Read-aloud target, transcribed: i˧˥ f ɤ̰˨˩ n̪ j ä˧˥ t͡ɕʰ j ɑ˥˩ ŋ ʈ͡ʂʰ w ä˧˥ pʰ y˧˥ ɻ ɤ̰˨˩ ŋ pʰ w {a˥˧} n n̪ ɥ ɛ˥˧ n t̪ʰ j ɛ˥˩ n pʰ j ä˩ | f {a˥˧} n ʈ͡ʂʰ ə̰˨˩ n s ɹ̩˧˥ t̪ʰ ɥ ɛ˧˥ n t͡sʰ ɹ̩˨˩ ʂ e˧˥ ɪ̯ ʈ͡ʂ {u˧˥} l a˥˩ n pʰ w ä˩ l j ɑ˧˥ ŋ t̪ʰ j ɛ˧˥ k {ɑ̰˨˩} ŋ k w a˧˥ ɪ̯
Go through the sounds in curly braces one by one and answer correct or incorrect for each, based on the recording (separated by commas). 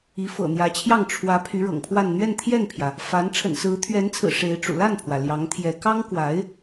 correct, incorrect, incorrect, incorrect